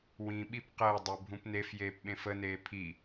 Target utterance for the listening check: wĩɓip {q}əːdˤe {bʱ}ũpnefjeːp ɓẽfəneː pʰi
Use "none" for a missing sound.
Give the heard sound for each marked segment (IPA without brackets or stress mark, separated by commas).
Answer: q, bʱ